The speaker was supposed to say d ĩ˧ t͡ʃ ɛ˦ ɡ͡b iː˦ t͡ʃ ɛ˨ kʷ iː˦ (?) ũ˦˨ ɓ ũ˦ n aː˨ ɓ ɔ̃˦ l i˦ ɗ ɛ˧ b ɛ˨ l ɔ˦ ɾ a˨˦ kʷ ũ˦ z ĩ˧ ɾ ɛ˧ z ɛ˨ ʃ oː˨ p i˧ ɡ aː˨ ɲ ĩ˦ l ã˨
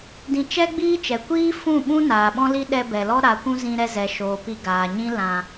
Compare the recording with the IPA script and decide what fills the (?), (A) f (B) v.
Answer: A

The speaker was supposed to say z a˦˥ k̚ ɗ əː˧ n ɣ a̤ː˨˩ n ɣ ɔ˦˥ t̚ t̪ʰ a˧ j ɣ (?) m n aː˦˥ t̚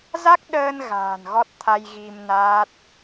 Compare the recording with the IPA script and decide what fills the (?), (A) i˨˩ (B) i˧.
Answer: B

